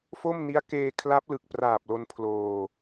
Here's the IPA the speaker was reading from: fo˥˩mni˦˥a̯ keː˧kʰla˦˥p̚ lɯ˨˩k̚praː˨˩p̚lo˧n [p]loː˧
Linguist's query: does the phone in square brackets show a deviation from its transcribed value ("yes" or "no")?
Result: yes